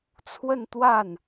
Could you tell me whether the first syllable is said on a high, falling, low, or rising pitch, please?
falling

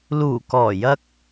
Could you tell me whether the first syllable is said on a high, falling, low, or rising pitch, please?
low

